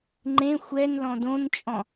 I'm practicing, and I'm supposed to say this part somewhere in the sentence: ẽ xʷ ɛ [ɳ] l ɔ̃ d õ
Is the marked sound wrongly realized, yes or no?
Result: yes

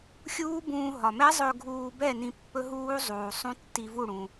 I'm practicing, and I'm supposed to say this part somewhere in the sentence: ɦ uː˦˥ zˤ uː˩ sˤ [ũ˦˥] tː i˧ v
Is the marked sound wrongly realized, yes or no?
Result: no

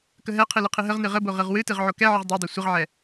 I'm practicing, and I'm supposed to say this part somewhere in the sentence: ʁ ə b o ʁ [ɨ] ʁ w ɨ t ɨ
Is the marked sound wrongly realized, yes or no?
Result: no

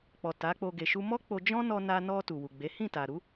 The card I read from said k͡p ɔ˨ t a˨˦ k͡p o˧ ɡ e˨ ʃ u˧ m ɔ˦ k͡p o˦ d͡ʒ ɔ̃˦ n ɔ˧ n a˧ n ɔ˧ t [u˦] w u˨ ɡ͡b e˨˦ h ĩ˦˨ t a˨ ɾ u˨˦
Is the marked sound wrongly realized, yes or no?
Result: yes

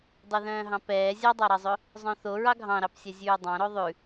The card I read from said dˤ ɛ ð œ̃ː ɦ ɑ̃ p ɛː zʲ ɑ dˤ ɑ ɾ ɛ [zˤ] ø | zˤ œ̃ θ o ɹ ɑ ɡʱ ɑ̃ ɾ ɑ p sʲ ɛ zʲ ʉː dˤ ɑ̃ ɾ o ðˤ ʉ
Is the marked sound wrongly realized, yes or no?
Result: no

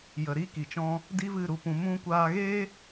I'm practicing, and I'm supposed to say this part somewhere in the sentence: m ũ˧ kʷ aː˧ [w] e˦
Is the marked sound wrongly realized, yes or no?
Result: yes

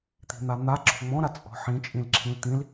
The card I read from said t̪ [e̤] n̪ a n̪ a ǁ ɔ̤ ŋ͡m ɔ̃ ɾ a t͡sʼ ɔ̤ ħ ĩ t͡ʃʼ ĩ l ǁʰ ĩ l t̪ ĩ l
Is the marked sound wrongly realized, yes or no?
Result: yes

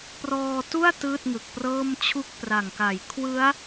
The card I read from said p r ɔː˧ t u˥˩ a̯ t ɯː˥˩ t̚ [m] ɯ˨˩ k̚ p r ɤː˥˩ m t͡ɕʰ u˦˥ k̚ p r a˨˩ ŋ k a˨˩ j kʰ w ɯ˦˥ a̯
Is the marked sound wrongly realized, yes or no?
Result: yes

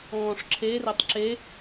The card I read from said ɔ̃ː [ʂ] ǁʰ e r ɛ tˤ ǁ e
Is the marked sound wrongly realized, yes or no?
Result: no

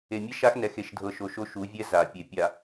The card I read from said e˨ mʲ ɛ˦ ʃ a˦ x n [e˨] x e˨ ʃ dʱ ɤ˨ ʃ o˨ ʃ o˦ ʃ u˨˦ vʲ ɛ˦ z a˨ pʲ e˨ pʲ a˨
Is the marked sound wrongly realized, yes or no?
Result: yes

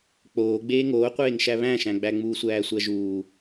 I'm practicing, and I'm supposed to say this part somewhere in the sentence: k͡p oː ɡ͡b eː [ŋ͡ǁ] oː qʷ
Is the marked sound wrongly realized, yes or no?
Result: yes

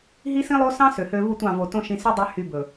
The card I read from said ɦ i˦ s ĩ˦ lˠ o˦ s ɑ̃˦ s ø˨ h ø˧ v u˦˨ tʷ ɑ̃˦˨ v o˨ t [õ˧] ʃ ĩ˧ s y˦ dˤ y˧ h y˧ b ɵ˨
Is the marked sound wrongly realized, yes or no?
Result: no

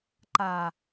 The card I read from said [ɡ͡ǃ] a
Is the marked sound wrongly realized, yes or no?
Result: yes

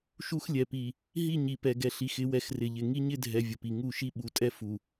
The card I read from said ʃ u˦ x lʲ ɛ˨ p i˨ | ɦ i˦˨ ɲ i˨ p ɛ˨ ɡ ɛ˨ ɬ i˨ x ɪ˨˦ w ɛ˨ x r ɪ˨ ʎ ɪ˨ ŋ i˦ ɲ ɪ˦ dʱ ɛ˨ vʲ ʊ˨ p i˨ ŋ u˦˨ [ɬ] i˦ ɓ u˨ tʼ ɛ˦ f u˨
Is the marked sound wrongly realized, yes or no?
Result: yes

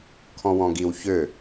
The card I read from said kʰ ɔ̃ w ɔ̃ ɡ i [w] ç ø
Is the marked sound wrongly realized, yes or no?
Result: no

